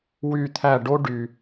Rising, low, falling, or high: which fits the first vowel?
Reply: falling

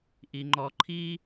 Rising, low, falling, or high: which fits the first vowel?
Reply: low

